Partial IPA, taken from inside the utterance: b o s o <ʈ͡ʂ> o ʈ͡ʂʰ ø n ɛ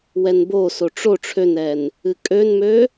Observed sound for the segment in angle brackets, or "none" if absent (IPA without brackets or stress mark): ʈ͡ʂ